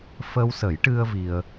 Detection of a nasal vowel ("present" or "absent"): absent